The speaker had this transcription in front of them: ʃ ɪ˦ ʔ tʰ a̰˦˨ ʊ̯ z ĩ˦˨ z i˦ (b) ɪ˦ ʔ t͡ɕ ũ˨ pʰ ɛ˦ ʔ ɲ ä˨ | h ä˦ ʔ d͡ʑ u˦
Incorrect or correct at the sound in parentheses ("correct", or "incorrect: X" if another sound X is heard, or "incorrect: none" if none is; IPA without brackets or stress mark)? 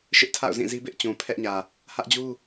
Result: correct